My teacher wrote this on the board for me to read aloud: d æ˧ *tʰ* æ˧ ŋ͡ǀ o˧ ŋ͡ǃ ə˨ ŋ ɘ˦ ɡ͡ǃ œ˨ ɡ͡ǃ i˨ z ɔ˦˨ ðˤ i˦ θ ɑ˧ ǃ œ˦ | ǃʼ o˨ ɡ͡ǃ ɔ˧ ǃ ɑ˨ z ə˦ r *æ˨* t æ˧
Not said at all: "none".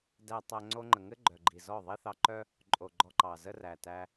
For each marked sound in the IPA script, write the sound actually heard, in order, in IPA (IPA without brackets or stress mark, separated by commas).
tˤ, æ˨